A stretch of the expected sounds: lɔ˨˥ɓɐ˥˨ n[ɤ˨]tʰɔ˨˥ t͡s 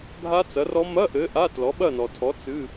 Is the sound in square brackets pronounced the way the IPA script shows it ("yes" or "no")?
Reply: no